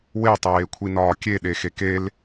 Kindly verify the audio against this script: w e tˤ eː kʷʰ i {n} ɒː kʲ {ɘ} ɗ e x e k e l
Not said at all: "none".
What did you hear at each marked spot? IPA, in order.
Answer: n, e

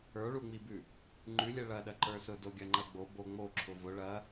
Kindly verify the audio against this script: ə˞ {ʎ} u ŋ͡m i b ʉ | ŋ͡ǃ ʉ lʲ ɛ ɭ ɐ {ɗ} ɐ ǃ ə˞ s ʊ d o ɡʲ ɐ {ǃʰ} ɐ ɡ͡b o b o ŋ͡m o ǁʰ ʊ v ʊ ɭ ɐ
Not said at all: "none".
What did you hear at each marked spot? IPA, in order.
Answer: ɭ, ɗ, ŋ͡ǃ

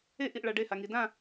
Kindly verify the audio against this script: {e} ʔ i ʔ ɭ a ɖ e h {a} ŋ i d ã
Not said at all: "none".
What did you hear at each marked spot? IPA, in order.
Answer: e, a

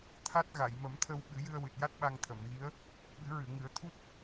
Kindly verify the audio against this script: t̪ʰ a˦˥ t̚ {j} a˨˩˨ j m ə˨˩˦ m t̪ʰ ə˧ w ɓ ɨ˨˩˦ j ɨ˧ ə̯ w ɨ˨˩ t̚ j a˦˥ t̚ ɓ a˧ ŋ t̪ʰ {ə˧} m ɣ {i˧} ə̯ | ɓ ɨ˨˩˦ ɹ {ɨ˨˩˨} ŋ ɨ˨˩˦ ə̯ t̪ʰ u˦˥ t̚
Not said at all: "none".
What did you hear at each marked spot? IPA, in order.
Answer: ɣ, ə˨˩˨, i˧˥, ɨ˨˩˨

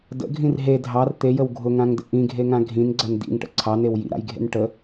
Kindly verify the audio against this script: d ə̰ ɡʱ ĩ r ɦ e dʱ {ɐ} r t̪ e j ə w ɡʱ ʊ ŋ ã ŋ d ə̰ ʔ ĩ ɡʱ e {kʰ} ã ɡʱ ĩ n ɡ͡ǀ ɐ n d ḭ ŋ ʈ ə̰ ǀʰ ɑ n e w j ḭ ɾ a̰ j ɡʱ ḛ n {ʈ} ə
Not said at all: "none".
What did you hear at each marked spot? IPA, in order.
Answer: ɑ, ŋ, ʈ

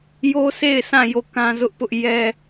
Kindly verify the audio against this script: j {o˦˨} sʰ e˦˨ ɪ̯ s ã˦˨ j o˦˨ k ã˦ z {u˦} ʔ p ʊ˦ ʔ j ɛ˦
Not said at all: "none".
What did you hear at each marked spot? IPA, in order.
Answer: o˦, ʊ˦

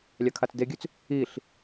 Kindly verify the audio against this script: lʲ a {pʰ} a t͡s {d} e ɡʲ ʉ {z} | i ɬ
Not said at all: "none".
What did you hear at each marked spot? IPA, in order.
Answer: kʰ, d, t͡s

